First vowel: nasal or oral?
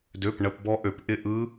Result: oral